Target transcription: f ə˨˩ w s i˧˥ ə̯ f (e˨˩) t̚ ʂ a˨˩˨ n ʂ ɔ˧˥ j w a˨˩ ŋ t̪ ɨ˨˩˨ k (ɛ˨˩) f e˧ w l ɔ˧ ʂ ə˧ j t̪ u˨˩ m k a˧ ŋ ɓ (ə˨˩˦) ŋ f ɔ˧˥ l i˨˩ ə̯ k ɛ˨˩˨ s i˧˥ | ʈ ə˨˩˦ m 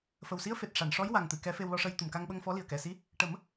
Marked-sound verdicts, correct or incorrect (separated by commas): correct, incorrect, incorrect